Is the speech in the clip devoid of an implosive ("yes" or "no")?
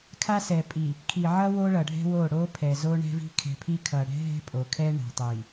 yes